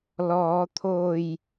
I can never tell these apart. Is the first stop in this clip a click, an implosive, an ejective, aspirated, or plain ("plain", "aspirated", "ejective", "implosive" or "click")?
aspirated